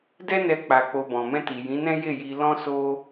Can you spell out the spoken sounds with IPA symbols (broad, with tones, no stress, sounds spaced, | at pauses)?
d ɛ˦ n ɛ˧ k͡p a˧ k͡p o˧ b ɔ̃˨ m ɛ̃˧ t i˨ j ĩ˨˦ n ɛ̃˦ j e˦˨ j i˧ l ɔ̃˦ s o˦